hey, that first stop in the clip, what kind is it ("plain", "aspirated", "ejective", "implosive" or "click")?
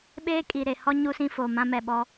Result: implosive